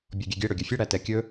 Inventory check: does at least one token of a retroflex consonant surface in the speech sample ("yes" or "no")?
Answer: yes